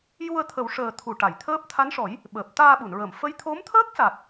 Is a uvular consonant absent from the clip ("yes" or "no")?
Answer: yes